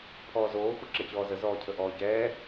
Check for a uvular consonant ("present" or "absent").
absent